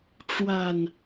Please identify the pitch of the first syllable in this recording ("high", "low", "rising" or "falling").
low